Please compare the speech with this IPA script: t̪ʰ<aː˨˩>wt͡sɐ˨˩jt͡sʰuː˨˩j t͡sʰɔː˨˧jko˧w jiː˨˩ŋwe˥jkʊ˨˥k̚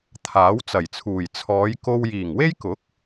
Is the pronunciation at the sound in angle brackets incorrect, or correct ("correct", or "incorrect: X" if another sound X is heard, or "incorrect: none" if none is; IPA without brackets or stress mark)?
incorrect: aː˨˥